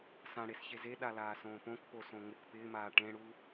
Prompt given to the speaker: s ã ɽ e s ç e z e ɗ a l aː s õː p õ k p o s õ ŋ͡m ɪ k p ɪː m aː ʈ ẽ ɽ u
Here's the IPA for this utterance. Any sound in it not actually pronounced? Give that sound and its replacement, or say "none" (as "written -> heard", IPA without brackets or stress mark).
none